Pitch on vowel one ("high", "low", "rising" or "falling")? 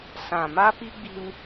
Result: low